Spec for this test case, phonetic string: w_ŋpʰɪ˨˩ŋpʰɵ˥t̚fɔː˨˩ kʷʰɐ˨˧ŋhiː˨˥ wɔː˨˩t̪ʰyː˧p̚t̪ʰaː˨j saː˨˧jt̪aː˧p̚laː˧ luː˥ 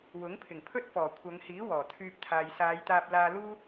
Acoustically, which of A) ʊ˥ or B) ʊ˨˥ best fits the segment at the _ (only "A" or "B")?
B